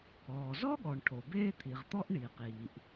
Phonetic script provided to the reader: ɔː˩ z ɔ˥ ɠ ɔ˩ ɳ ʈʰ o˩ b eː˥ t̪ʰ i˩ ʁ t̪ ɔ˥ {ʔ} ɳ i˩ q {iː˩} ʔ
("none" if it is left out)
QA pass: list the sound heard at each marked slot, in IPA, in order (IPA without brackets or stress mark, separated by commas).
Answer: ʔ, iː˩